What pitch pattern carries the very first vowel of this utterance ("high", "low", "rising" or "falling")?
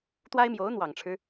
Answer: high